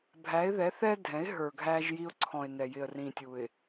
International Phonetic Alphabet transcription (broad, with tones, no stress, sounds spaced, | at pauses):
bʱ æ˨˦ ɪ̯ ð ɛ˨˦ θ ɛ˦ dʱ ɛ̃˨˦ ɪ̯ ɦ ə˞˨ ɡʱ æ˦ ʒ j i˦ ʊ̯ ǀʰ ɔ̃˨ ɪ̯ n ɛ˨ j ɪ˨ ə̯ r ĩ˨ tʲ u˨ ɪ̯